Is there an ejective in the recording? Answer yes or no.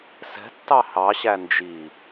no